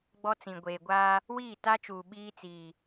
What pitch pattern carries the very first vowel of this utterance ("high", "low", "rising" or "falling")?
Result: high